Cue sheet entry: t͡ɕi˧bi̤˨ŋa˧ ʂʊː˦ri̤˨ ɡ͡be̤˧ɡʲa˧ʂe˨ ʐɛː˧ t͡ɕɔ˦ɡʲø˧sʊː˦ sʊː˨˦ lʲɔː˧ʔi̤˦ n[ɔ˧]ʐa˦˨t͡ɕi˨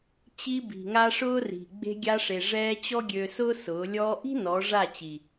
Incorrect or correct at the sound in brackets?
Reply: incorrect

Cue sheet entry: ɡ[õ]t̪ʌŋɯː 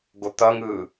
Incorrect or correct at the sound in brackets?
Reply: incorrect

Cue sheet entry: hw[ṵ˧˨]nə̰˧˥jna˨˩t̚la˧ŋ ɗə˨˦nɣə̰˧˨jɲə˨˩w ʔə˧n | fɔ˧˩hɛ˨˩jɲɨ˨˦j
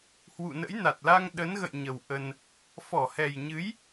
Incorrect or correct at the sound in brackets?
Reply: correct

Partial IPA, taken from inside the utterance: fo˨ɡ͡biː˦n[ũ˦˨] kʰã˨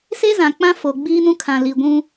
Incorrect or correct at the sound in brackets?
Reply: incorrect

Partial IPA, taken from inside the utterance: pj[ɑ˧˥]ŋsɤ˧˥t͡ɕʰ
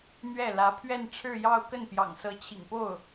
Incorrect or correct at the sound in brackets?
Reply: incorrect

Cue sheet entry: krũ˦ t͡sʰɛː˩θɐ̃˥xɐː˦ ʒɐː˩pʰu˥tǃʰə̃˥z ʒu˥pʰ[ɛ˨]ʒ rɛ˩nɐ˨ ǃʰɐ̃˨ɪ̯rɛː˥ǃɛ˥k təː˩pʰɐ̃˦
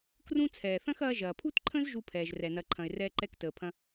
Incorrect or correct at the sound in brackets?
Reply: incorrect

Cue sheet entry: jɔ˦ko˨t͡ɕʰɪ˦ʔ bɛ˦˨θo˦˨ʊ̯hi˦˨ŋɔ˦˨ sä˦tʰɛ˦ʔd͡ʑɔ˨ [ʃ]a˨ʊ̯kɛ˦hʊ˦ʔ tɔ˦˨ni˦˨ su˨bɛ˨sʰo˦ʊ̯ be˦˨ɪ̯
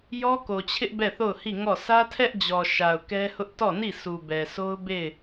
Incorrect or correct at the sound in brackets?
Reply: correct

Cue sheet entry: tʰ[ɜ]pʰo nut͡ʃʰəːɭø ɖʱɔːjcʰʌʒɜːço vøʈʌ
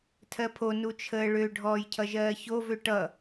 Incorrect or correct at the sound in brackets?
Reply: correct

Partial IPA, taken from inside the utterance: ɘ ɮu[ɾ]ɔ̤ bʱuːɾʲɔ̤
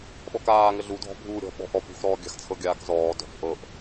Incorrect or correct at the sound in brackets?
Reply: incorrect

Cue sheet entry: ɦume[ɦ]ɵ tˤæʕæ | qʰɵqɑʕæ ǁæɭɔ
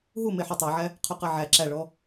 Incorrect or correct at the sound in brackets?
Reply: incorrect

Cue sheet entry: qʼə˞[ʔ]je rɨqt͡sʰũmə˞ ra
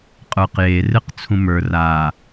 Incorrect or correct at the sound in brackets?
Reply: incorrect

